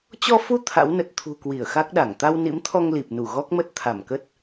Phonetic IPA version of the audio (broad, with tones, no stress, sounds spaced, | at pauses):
t͡ɕ ɔ˧ f u˧ t̪ʰ a̰˧˥ w n ə˨˩ t̚ t̪ʰ ṳ˨˩ k w i˧˩ ə̯ x a˦˥ k̚ ɗ a˧˩ ŋ t̪ a˧ w n ḭ˧˥ m t̪ʰ ɔ˧ ŋ l i˨˩ p̚ n u˧˩ ɣ ɔ˦˥ k̚ m ə˦˥ t̚ t̪ʰ a˧˩ m k ə˦˥ t̚